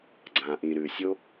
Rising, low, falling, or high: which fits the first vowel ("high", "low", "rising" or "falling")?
low